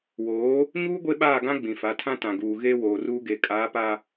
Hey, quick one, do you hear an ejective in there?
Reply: yes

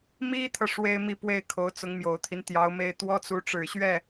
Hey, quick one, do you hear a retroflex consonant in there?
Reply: yes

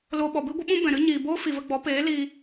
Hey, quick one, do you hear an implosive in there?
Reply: yes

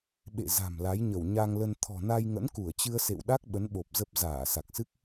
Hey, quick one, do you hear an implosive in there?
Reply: yes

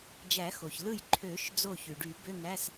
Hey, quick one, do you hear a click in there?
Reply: yes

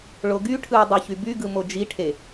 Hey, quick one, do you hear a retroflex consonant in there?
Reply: yes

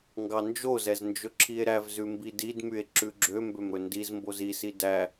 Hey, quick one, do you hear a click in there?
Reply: yes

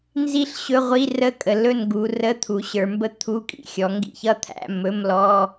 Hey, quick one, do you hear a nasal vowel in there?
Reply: no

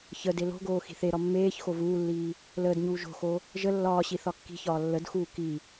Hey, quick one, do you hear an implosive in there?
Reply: no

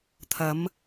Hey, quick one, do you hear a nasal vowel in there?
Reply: no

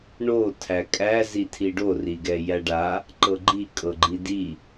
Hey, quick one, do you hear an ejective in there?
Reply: yes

